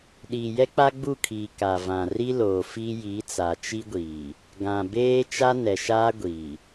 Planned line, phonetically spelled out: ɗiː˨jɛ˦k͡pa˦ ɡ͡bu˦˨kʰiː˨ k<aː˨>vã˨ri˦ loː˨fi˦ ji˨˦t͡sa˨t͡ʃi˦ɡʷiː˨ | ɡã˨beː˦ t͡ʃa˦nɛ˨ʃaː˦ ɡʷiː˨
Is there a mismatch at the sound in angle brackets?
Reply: yes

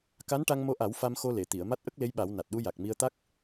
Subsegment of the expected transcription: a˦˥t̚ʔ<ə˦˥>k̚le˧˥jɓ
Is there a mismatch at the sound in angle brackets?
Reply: no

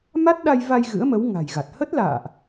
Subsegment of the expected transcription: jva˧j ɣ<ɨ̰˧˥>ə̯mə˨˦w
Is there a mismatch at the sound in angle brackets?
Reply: no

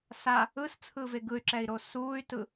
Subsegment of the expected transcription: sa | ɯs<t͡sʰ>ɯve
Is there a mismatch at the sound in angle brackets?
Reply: no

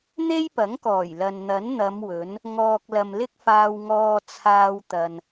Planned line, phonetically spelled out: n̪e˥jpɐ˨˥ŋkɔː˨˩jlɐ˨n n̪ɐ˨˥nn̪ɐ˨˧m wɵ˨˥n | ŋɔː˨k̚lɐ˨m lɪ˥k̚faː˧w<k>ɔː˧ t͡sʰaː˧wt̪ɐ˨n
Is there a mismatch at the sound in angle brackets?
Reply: yes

